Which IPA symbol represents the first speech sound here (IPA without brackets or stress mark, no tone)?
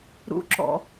ɾ